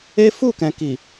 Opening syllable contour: high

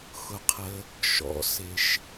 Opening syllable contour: low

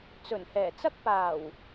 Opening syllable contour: low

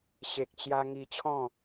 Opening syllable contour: low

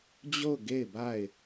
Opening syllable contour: falling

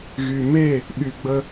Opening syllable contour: low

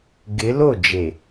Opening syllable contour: rising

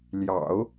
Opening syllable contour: low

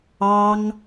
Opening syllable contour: high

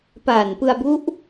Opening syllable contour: low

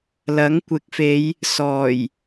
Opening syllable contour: rising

